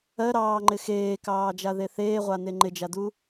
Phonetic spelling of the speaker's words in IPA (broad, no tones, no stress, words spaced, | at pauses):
ɜɾɑːŋ͡ǃɪ xeːkɑːd͡ʒaðe θeːʁʷane ŋ͡ǃɪd͡ʒadu